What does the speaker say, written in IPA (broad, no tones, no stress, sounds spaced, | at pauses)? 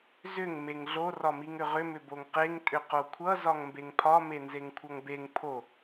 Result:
z ʏ ŋ m e ŋ ɮ o r ɒ m i ŋ ʏ ʁ ʏ m ʏ b o ŋ q e ŋ tʼ ʏ q o kʷʰ ʌ z ɒ ŋ m b e ŋ pʰ ɒ m e n z e ŋ kʷʰ ʌ ŋ b e ŋ pʰ o